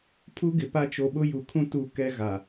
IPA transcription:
pʰu˦ɡɪ˨pa˦ t͡ʃo˨ɓʊ˦ju˨kʰũ˦ tu˦ kɛ˦ɣa˨

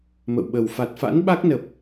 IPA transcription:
mə̰˧˨wɓə˨˩w fa˨˩t̚fa̰˧˥n ɓa˦˥k̚nə˨˩p̚

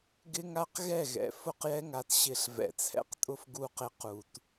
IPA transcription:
ɡɪ˦ŋa˦qɣɛ˦˨ ɣɛ̰˨ fʊ˦˨qjɛ˦ŋa˨t ɕɪ˦˨ɬ vɛ̰˨t͡sʰɛ̰˦qtʼʊ˦f ɡu˦˨qɪ˦qu˨t

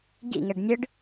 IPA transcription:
ɟḭŋɛɖ nʲɯɖ

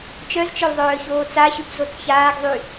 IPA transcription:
t͡ʃœzt͡ʃœl ðˤœːçoːt͡saɕyp zot͡sçaːɡðˤy

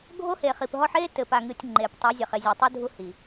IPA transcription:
ɡʱo˦he˨χi˨pɦɔ˦ħ e˦tɘ˨pa˨ŋɨ˨tʲ ŋ͡ǃe˨p tˤɐ˨˦zʲɐ˨χ e˨zʲo˨tˤu˦ dʱu˦hi˨

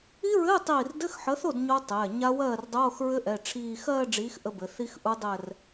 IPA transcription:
i˦˥ɹɘː˧˥˧ tˤiː˥˩r dɘ˧˥˧xħə˨˥θo˥˩d ɲo˦˥tˤɛː˩˧˩ɲa˦˥ wɜː˥˩rdˤoː˧˥˧xɹɘ˦˥ʔɛ˩˧˩ ʈ͡ʂʰiː˥˧ xɜː˥˧ɖ͡ʐiː˨˥x ʔə˦˥bɘ˨˥ θi˦˥xʔu˦˥ dˤɛ˥˧r

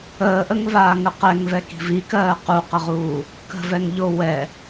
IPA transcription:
əːʔəŋvaːŋə qɛŋvɛki̤v ikɜː quqəʁuː | kə̤vɛŋʎo wɛ

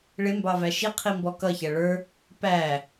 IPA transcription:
ɭɪmbɑvæ ʃi qʰimbɔkʌçæ ɭə˞ | pæ

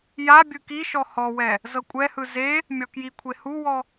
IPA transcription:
ja bʲɯkiʃɔ hɔwɛ | zɤkʷʼɛhɯ ze | mʲɔkjikʷʰe huwɔ

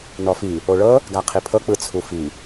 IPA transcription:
nɔfi | oɭɤ | ɡaqʰipʰɤ k͡pɯt͡sʰufi

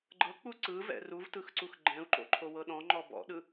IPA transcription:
ɡ͡ǃɤk͡pu ǀɯvɛ̰ ruvtɯxǀux ɡ͡ǃɛ̃u̯ǃo̰ǃʰowɤ ɗɔ̃ŋ͡ǃɔ bɔ̰ɗɯ

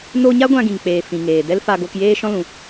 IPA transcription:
no˦ ɲa˦ɡʷã˧ɡĩ˨ŋk͡peː˨ fĩ˨ŋeː˨dɛ˦l fa˧ɡo˧kjeː˦ ʃɔ̃˦lũ˨˦

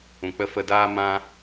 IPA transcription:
ũ˨k͡pə˧fə˧daː˦ mã˦

